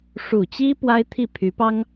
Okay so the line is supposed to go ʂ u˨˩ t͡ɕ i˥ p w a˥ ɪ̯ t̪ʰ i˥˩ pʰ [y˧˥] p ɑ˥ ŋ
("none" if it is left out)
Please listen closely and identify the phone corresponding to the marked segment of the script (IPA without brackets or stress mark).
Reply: y˧˥